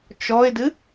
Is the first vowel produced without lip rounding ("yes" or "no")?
no